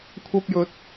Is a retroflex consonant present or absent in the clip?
absent